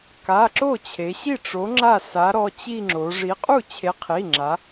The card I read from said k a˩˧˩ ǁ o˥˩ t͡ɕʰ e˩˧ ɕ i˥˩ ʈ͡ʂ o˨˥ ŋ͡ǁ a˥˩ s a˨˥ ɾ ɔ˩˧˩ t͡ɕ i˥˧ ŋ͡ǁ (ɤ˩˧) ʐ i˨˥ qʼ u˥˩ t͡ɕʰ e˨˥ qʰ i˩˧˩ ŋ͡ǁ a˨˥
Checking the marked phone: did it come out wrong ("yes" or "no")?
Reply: yes